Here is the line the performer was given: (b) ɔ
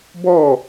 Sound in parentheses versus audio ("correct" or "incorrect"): correct